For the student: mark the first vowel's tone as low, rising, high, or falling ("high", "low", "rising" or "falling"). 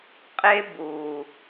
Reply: high